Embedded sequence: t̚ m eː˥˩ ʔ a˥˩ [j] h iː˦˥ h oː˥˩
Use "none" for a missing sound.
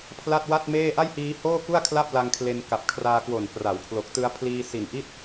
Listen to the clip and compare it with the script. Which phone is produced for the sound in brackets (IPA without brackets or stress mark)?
j